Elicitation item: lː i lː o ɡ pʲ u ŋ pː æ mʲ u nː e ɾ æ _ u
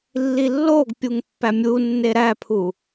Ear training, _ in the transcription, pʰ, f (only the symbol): pʰ